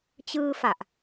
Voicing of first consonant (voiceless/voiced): voiceless